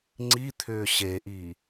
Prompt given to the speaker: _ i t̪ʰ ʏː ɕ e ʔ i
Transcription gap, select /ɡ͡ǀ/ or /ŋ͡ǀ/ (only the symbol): ŋ͡ǀ